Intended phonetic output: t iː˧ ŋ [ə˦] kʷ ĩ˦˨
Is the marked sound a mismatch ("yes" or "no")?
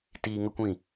no